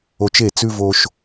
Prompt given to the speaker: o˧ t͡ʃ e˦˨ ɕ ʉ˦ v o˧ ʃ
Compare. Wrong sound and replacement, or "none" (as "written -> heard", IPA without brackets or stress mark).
ɕ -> t͡s